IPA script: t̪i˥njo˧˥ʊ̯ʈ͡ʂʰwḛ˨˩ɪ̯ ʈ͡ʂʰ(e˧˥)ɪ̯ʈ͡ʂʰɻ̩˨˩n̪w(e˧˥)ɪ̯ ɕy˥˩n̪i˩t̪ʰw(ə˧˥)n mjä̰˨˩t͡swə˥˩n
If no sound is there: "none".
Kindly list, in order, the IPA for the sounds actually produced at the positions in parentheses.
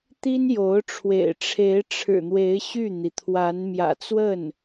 e˧˥, e˧˥, a˧˥

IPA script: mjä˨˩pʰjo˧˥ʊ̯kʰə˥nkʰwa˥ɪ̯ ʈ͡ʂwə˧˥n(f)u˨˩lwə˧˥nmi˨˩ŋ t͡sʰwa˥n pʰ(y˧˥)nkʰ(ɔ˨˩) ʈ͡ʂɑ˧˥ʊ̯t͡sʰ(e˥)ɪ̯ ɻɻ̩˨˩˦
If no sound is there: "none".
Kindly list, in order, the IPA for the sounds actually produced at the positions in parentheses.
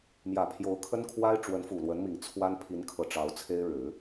f, i˧˥, ɤ˨˩, e˥

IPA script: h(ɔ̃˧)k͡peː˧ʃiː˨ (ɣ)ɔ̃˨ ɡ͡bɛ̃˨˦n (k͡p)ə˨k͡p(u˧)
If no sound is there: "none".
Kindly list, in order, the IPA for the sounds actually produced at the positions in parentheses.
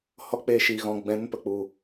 ɔ˧, ɣ, p, u˨

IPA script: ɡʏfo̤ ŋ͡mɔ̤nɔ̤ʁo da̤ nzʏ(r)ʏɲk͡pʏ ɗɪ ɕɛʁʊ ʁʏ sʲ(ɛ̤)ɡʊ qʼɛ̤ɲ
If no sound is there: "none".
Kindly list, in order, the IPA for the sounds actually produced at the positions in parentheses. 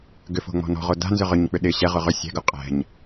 ʁ, ɛ̤

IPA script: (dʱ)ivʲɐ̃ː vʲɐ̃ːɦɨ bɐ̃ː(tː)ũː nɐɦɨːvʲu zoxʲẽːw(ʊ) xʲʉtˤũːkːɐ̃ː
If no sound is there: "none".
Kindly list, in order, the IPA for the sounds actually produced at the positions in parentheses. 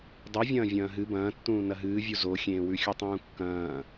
dˤ, tː, ʉ

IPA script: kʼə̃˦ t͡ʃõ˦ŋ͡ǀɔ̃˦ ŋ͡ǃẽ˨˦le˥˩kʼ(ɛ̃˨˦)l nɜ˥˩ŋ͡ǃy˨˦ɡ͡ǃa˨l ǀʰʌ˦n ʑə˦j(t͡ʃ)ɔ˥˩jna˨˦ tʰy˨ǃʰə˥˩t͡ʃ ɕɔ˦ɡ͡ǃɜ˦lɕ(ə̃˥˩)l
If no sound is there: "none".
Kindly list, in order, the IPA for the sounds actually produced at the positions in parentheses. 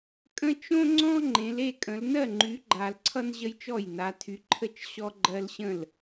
ə̃˨˦, t͡ʃ, ə̃˥˩

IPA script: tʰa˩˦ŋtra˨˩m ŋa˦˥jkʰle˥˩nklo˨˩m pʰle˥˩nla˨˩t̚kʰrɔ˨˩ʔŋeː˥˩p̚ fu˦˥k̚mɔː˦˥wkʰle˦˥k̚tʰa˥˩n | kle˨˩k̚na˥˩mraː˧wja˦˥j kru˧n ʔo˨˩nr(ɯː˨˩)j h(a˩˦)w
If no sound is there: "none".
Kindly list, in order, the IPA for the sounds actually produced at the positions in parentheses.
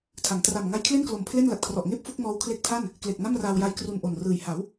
ɯː˨˩, a˩˦

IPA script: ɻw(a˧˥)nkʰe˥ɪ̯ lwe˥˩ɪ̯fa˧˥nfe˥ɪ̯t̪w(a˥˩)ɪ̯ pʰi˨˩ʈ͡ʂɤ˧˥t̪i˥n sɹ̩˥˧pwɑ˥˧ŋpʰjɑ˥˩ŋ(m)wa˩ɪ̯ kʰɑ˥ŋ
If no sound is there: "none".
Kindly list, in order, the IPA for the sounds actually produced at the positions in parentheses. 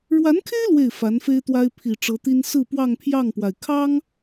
a˧˥, a˥, p

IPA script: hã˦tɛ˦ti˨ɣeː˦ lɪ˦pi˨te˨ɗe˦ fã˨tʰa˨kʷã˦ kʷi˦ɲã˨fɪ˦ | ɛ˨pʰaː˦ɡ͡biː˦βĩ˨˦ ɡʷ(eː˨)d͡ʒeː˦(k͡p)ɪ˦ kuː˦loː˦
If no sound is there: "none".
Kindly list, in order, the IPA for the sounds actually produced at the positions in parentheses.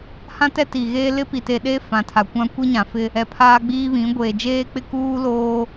eː˨, k͡p

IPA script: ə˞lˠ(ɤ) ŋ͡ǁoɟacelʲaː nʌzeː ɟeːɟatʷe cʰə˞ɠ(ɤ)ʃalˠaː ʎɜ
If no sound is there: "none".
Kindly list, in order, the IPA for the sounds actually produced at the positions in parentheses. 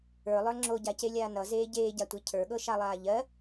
ə˞, ɤ

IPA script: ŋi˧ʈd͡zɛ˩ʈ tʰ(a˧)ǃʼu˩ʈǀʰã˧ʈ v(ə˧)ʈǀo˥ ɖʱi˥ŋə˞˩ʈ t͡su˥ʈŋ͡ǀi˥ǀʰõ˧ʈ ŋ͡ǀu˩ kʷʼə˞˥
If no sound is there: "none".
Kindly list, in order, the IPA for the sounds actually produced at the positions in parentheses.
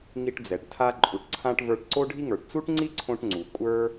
a˧, ə˞˧

